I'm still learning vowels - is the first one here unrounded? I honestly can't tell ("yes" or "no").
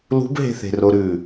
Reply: no